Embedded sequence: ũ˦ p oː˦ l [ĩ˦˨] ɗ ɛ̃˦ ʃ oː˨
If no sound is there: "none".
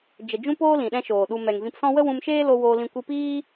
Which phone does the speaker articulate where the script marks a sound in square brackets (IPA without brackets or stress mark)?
ĩ˨